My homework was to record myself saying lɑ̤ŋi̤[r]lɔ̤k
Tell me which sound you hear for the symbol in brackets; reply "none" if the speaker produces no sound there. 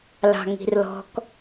r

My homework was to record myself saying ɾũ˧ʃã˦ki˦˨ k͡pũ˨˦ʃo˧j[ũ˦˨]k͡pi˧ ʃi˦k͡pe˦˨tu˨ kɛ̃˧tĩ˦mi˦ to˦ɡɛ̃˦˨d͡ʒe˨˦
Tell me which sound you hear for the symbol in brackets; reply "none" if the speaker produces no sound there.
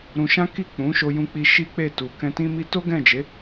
ũ˧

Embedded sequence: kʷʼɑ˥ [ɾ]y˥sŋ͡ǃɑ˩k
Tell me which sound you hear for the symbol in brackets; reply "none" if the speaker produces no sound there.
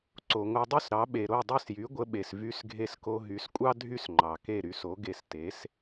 dʱ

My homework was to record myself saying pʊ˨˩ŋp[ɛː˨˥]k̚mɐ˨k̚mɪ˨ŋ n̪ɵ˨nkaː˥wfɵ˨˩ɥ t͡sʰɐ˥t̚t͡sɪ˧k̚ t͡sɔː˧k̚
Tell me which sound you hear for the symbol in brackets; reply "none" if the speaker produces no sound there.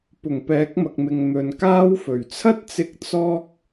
ɛː˨˥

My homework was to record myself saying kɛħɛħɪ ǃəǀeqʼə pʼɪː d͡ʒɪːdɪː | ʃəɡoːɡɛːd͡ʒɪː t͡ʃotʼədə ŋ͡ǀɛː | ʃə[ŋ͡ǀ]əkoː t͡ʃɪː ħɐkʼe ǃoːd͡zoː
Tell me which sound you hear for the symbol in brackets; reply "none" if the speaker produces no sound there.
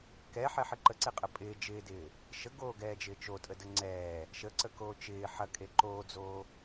ǀ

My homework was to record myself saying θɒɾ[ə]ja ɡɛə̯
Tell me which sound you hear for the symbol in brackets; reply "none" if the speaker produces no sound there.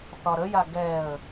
ə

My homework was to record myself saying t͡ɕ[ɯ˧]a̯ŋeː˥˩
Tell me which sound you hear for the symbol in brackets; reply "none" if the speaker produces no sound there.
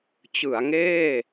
ɯ˩˦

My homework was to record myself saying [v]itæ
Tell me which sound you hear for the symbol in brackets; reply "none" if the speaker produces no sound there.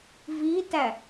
v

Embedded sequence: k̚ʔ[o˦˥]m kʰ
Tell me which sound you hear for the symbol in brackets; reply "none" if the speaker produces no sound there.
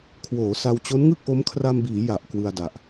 o˦˥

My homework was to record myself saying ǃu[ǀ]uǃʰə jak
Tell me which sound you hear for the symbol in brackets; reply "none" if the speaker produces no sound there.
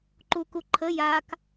k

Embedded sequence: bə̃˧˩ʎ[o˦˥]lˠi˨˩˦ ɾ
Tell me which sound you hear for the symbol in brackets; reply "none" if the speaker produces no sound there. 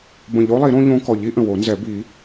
o˦˥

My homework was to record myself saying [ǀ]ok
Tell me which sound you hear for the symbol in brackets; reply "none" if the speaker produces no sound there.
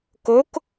k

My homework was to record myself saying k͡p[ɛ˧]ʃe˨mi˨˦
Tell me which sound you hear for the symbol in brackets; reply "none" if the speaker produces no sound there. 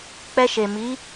ɛ˧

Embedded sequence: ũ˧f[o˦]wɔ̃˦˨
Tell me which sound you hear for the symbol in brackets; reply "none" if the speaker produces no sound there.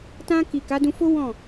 o˦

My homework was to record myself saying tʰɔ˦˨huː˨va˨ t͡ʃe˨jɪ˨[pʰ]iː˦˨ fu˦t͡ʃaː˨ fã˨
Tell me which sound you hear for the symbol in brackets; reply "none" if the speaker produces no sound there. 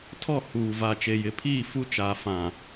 pʰ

